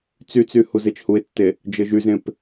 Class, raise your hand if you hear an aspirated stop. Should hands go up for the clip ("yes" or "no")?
no